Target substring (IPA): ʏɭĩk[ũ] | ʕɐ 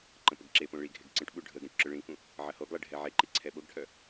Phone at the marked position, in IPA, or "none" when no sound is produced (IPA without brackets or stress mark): ũ